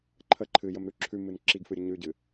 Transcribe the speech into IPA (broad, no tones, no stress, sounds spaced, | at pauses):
ǃʰ ə ǃʰ ɨ j ə m ɾ ʉ ǁʰ ʉ m ɨ n ǁ i ɡ f ɨ ɾʲ ə ɲ ʉ ɟ ɨ